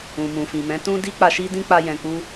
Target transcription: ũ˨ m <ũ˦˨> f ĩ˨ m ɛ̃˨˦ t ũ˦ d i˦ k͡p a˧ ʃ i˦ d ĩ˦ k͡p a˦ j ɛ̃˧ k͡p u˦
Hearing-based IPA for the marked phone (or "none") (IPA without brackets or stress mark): ũ˨